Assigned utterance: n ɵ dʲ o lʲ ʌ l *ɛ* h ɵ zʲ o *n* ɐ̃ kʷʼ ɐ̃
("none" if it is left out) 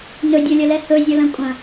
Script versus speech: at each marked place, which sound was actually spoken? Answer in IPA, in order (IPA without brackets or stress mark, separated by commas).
ɛ, l